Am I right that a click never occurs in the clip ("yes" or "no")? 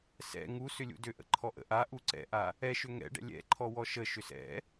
no